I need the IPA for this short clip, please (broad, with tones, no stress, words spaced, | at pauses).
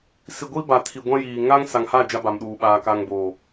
si˨ɡʷi˦ ba˨tʰi˨ɡʷã˦jiː˨ ŋa˦ŋ sa˨ŋha˦˨ d͡ʒa˦ba˨mɗuː˨ ɓaː˨ka˨ŋboː˨